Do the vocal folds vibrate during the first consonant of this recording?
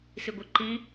no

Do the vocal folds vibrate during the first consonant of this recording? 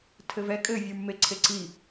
no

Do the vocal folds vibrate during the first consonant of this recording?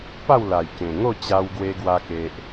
no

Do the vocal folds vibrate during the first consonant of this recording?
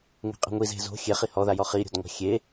yes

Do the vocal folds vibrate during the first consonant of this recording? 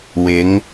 yes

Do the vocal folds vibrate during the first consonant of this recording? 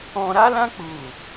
yes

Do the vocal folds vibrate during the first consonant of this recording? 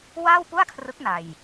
yes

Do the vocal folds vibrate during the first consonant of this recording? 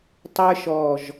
no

